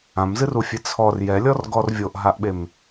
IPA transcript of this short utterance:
ã m z ɨ r u fʲ e t͡sʰ ɔ r j ɛ lʲ ɔ r ɡ ɔ r vʲ o ʔ ɦ a ʔ ɓ e m

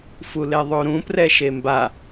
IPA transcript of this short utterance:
f u l e ðˤ o ɾ ũ p r ɛ ʃ e m b a

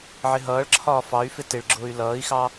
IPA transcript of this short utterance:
ʕ ɪ ɦ ʌː ɭ ǁʰ ɒː f ɑ y̯ f ɪ t ɪ ɭ ɡ͡ǁ ʊː y̯ l ʌː i̯ x ɑ

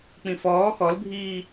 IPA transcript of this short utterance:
k͡p ĩ f ɔː x ɔ l bʱ iː

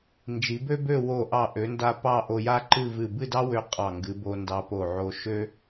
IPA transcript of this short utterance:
n d͡ʒ i˩˧ b ø˥ b ø˥˧ w o˧˩ ʔ ɑ˧˩ ʔ ø˩˧ n d a˧ p ɑ˥˧ ʔ o˧ j a˥ ǃ ɨ˥˧ v ɨ˧˩ b ɨ˥˧ d ɑ˥ w ø˧ qʼ ɑ˧˩ ŋ ɡ ɨ˩˧ b o˧ n d ɑ˧ p o˧˩ ʕ o˧ ʃ ø˥

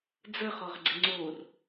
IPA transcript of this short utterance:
d͡z ə χ ɔ ʁ ɡ͡ǀ ɪ ŋ͡ǀ o r

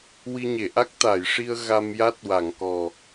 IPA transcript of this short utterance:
w i˧ ɲ e˨˩˨ ʔ a˦˥ k̚ t̪ a˨˩˨ j ʂ i˧ ə̯ ɣ a˧ m j a˦˥ t̚ w a˨˩˨ ŋ k ɔ˨˩

